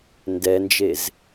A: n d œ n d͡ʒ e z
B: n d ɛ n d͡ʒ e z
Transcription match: B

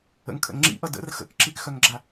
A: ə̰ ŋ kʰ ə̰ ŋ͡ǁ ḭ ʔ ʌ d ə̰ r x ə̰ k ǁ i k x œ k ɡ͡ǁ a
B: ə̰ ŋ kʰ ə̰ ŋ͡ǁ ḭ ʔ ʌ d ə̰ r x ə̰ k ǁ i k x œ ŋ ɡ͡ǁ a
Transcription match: B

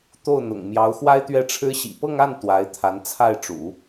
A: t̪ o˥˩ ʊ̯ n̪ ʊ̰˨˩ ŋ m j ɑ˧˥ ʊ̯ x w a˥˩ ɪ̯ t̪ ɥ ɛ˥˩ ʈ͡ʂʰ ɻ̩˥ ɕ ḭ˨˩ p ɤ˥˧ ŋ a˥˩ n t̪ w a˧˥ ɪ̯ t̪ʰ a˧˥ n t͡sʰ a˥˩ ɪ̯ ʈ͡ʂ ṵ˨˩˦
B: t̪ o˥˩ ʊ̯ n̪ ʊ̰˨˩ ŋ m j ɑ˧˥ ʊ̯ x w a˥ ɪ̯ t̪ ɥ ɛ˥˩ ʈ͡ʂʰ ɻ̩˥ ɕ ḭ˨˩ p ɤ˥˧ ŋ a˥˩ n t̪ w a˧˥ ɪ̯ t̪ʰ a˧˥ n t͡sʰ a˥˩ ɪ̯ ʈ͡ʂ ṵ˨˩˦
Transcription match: B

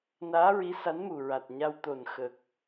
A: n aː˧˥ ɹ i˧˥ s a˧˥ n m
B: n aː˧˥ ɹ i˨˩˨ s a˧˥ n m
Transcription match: A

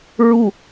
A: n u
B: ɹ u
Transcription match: B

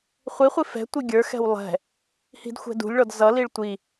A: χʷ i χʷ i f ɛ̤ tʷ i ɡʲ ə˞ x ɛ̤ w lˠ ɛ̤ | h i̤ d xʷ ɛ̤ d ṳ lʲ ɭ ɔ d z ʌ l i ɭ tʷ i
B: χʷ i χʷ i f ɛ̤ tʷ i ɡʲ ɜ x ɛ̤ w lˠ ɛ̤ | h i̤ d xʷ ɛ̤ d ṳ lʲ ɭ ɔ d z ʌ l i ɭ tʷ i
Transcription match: A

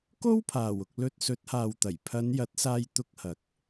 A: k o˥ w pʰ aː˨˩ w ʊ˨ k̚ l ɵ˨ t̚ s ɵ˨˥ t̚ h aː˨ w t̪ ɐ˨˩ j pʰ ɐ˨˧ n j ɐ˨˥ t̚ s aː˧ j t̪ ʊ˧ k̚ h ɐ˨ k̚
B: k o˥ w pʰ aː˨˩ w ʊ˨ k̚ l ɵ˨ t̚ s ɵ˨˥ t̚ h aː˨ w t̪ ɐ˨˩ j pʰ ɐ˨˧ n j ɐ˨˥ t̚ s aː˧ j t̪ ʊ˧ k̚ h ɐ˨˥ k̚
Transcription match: B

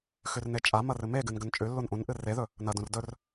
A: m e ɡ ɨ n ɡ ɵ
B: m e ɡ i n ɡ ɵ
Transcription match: A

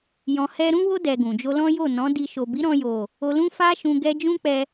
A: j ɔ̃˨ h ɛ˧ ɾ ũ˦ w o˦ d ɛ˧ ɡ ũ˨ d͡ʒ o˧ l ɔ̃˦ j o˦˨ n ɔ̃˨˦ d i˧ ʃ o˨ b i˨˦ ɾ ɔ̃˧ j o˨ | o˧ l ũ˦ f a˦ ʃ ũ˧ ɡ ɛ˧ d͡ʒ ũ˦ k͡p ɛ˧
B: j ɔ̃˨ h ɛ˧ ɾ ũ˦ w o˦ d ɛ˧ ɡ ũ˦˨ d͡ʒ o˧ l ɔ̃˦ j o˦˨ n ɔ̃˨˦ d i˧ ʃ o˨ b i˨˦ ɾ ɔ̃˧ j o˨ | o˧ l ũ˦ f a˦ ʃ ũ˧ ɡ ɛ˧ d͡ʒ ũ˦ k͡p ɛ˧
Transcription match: A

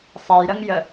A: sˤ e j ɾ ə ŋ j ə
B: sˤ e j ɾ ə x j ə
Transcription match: A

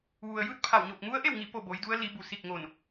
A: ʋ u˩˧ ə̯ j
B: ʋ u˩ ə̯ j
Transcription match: B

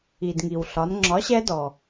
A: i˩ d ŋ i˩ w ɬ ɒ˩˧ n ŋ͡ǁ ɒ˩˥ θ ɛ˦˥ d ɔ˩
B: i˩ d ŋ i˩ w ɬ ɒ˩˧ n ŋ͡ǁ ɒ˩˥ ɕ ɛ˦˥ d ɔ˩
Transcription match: B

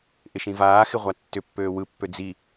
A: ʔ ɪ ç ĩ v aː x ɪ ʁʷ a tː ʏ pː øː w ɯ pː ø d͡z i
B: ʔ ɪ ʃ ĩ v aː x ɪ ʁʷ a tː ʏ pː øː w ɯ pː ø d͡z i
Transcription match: B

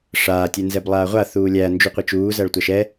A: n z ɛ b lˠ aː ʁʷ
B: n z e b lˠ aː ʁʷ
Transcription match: A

